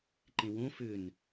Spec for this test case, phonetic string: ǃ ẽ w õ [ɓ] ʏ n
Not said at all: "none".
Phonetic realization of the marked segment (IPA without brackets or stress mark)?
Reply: f